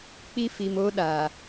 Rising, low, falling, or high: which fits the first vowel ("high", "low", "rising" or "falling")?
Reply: high